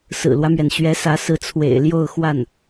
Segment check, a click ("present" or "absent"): absent